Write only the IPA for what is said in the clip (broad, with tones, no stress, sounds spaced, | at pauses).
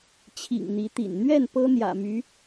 t͡ɕʰ ḭ˨˩ ŋ n̪ i˧˥ t̪ ḭ˨˩ n n̪ ɥ ɛ˥˩ n p ɤ˥ n̪ j ä̰˨˩ m y˧˥